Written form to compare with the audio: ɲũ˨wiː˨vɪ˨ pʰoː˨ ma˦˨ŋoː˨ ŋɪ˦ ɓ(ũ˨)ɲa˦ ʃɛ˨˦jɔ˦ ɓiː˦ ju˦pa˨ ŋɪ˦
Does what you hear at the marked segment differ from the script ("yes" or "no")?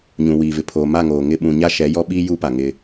no